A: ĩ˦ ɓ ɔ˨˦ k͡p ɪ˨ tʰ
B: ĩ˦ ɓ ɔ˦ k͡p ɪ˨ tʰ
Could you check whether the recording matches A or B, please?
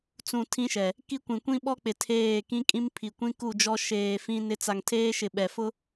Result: B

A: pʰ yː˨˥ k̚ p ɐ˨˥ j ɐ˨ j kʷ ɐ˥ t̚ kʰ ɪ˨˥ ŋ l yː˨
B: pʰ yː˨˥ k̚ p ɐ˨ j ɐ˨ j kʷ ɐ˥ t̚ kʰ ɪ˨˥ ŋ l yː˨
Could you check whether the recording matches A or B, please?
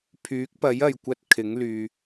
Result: A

